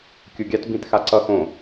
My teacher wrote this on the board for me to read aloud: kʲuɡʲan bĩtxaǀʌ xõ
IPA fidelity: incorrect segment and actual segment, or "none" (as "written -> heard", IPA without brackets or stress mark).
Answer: n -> t